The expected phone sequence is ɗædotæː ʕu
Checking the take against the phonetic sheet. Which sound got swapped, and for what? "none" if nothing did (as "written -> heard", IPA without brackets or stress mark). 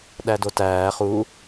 ʕ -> χ